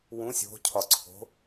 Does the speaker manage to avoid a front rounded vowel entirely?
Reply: yes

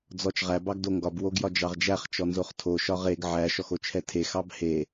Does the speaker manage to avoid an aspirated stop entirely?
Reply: no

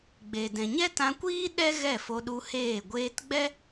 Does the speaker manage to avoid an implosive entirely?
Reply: no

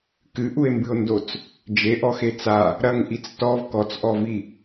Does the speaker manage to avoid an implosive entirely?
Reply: yes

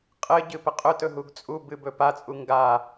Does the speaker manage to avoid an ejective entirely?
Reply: no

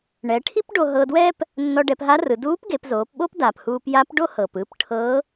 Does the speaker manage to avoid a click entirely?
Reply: yes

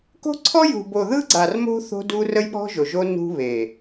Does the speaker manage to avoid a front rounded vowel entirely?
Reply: yes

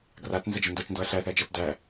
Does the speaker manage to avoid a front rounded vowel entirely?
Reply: yes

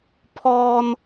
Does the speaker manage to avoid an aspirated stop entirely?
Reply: no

